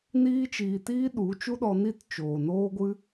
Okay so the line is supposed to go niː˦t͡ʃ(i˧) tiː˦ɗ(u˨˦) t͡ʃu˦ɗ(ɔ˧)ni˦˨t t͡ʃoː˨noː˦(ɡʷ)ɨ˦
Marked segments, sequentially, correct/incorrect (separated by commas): incorrect, correct, correct, correct